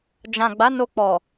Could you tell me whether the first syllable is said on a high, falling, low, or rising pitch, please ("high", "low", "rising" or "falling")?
low